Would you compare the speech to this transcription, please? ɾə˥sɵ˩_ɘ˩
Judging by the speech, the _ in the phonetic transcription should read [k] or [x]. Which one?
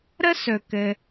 k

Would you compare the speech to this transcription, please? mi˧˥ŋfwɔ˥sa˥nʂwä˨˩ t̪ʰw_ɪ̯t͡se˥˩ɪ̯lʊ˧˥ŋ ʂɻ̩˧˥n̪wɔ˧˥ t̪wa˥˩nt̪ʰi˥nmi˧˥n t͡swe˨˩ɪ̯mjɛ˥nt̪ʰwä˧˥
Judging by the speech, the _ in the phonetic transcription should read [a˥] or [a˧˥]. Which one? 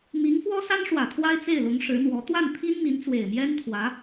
a˥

